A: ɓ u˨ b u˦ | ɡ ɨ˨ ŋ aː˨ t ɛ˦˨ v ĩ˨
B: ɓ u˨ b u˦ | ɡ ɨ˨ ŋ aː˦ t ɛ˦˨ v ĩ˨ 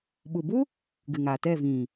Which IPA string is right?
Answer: A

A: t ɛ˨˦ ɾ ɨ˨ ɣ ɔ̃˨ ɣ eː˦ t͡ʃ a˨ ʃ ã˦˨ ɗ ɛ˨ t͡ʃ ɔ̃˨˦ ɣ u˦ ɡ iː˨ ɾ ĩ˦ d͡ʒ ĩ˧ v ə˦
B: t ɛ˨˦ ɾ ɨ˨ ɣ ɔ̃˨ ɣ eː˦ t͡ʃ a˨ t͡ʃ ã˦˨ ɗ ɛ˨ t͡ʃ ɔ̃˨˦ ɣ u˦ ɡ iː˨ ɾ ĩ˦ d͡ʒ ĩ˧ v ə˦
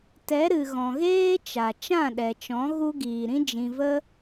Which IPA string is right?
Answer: B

